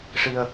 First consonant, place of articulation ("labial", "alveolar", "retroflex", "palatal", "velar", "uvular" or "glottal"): retroflex